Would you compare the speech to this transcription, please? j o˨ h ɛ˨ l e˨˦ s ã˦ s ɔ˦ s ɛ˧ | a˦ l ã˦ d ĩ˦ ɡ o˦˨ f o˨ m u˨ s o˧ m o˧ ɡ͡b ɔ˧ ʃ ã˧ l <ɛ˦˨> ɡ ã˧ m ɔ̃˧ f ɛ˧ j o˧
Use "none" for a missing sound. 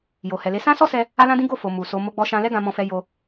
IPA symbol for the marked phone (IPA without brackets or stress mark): ɛ˦